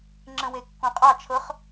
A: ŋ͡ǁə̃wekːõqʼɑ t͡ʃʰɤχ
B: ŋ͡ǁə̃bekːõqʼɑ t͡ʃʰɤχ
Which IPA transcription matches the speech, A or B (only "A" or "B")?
A